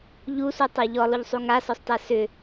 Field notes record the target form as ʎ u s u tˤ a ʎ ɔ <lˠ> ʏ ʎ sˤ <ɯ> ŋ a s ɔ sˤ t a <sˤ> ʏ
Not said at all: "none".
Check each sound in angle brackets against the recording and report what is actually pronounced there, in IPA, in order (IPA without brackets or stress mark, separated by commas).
lˠ, u, s